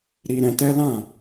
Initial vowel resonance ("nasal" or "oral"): oral